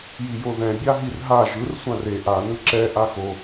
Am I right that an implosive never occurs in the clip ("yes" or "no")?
yes